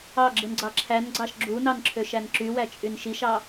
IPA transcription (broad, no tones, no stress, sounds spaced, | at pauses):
ɑ ɡ͡ǁ ɯ n ɡ͡ǀ ɑ ǁʰ æ n ɡ͡ǀ ɑ ʃ ɡ͡ǁ u n ɑ n ǁʰ ø ʃ æ n ǁ y w æ t͡ʃʼ y n ʃ i ʃ ɑ